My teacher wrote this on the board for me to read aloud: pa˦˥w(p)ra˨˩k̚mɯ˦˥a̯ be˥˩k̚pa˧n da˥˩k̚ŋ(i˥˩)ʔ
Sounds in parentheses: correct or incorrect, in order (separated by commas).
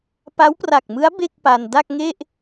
correct, incorrect